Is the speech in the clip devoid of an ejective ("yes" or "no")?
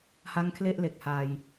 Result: yes